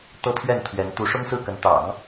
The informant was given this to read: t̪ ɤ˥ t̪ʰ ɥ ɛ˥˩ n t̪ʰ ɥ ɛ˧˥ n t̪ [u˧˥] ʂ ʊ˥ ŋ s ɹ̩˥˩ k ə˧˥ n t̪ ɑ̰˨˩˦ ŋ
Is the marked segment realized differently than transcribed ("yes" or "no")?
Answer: no